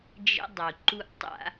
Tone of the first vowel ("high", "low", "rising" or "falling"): high